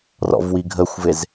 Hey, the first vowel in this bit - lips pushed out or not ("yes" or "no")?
yes